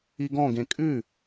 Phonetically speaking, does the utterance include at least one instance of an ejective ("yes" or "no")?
yes